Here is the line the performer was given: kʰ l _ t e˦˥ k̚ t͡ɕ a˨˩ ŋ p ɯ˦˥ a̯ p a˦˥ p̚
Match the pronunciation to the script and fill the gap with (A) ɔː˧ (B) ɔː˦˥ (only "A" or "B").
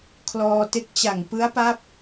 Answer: A